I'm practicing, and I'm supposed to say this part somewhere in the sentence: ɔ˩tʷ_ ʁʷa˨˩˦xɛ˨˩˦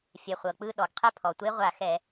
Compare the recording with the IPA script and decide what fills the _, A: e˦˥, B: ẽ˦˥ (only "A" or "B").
A